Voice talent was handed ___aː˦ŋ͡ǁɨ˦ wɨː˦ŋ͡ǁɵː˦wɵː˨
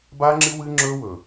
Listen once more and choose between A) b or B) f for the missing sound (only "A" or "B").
A